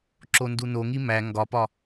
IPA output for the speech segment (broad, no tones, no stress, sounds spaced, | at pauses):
ǁ o n d u n o ŋ i m æ ŋ ɡ ɒ p ɒ